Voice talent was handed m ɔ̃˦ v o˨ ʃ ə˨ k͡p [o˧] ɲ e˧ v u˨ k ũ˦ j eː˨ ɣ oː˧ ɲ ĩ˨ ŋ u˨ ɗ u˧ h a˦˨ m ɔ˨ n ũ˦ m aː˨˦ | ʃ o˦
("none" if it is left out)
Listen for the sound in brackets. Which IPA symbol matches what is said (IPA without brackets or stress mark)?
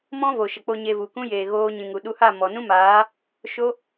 o˧